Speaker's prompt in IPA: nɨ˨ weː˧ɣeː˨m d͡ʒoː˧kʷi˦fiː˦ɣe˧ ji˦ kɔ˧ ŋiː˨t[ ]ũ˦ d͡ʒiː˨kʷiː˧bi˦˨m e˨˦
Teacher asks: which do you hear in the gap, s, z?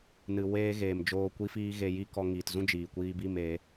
z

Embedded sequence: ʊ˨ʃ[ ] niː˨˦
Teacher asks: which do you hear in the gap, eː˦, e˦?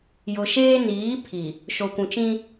eː˦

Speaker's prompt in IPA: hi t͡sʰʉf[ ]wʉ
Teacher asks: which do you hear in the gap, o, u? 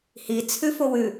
o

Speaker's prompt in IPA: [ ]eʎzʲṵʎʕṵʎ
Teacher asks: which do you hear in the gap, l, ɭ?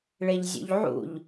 ɭ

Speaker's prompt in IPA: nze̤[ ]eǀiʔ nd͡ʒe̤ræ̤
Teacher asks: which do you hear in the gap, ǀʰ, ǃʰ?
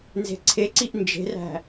ǀʰ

